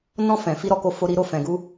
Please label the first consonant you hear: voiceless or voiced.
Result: voiced